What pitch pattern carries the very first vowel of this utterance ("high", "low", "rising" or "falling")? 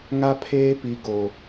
high